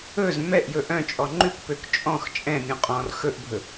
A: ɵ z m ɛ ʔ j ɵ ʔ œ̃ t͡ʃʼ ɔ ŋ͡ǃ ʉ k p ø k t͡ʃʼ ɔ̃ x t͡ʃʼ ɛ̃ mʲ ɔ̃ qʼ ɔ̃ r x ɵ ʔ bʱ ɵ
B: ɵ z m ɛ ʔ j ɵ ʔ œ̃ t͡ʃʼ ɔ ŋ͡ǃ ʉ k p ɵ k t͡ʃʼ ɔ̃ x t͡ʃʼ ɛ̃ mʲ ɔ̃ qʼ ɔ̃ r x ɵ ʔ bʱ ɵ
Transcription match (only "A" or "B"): A